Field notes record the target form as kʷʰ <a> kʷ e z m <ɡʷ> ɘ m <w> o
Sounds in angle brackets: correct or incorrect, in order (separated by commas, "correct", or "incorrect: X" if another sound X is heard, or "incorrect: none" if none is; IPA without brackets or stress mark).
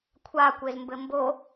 correct, incorrect: b, incorrect: b